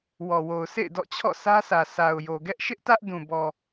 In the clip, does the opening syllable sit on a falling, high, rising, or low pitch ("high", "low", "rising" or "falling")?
low